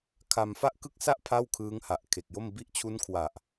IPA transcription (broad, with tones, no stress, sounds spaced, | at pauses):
kʰ a˧ m f a˥˩ ʔ k ɯ˥˩ k̚ s a˥˩ ʔ pʰ a˥˩ w kʰ ɯː˦˥ ŋ h a˨˩ ʔ kʰ e˨˩ k̚ j o˥˩ m b i˦˥ ʔ t͡ɕʰ u˦˥ n kʰ w a˨˩ ʔ